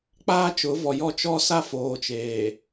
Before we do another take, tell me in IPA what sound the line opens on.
k͡p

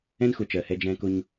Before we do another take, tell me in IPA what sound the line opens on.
ɛ̃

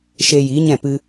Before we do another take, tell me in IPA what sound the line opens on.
ʃ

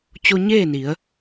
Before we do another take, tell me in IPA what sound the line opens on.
t͡ɕ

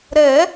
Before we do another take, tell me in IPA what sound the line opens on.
ɾ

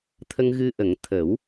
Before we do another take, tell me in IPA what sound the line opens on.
t̪ʰ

